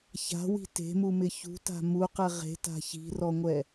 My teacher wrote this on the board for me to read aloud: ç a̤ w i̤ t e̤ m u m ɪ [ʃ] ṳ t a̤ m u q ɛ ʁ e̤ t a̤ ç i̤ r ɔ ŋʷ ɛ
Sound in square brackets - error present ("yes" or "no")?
yes